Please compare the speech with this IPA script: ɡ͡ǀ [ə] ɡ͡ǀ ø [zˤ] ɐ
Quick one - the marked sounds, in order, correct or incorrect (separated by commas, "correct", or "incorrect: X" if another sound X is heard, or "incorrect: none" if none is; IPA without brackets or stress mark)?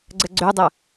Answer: correct, incorrect: dˤ